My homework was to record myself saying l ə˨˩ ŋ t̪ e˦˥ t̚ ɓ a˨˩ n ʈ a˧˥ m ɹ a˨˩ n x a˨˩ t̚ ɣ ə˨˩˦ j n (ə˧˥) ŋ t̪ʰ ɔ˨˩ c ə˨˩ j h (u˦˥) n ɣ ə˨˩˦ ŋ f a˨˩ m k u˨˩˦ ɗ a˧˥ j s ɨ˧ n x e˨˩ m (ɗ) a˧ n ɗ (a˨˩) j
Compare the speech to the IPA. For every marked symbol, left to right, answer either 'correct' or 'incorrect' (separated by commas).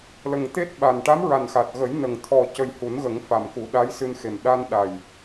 incorrect, incorrect, correct, correct